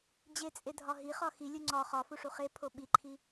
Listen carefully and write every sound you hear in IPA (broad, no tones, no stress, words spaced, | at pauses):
d͡ʑet͡sʼe dʱɒɦiχɒ xilʲu ŋ͡ǀɒ χɒfuʂ uχepʰo ɓiǃʰi